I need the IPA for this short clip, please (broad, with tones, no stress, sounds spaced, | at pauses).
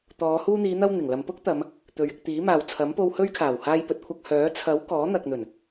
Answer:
t̪ ɔː˨˧ h uː˧ n̪ iː˨˧ n̪ ɐ˧ w n̪ ɪ˨˩ ŋ l ɐ˨ m p ʊ˥ k̚ t̪ ɐ˨˧ m | t̪ ɵ˨ ɥ ɪ˧ k̚ t̪ iː˨˥ m aː˨ w t͡sʰ ɐ˨˥ m p o˧ w h ɵ˥ ɥ kʰ aː˨˩ w h aː˧ j p ɵ˨ t̚ kʷʰ ɐ˧ k̚ h œː˨˥ t͡sʰ ɐ˨˥ w k ɔː˨˥ n̪ ɐ˨ k̚ n̪ ɵ˨˩ n